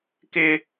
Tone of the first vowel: high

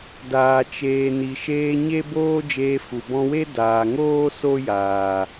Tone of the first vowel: low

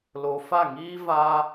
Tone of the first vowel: low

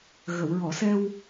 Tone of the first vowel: low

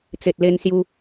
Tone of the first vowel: low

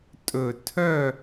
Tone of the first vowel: low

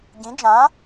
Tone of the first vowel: rising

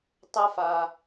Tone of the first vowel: high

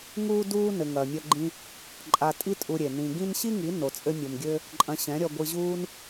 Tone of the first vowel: high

